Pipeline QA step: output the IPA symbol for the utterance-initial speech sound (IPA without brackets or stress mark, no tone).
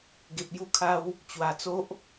ɡ